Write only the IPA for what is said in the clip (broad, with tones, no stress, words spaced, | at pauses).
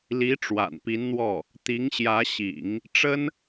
li˧˥ ʈ͡ʂwa̰˨˩npi˧˥nn̪wɔ˥˩ | t̪i˧˥ŋɕjä˧˥ɕḭ˨˩˦ŋ | ʈ͡ʂə˥n